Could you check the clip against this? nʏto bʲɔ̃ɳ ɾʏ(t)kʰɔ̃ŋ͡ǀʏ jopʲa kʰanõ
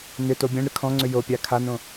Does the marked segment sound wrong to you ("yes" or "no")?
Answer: yes